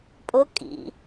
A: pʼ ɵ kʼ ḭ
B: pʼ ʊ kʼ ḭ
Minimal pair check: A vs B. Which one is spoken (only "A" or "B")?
B